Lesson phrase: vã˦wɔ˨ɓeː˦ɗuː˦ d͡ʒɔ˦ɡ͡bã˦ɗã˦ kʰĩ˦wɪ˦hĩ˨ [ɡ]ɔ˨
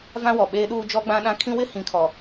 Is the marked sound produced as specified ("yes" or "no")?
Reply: no